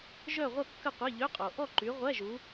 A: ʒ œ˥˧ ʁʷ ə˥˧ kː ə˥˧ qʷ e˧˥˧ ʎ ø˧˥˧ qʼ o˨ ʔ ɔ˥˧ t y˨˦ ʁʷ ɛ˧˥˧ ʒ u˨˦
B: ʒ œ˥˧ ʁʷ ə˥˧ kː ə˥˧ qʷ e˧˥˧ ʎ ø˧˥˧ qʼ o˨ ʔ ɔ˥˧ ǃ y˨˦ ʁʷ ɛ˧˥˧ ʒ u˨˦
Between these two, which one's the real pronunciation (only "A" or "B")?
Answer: B